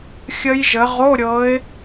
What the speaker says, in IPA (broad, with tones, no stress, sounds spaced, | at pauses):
xʲ ə˦˥ j ʒ ə˨˦ ʁ o˧˥˧ ɾʲ ɤ˨˦ ɪ̯